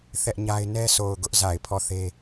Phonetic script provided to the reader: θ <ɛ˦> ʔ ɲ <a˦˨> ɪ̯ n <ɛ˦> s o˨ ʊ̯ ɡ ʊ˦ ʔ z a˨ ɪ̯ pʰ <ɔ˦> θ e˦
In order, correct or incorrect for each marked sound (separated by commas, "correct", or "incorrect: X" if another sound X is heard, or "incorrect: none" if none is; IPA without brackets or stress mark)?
correct, incorrect: a˦, correct, incorrect: ɔ˦˨